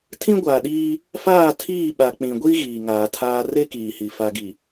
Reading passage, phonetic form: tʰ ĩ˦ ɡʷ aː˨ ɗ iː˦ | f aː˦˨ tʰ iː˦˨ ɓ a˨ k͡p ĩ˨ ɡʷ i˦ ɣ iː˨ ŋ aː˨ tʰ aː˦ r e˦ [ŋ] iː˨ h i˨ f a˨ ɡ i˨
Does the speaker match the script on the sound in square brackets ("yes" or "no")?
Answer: no